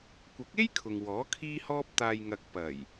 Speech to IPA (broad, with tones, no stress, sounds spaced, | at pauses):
kʷ ɐ˨˥ k̚ e˥ j kʰ ʊ˨ ŋ w ɔː˨˥ kʰ iː˧ h ɔː˧ p̚ t̪ aː˨ j ŋ ɐ˨ k̚ p ɐ˨˩ j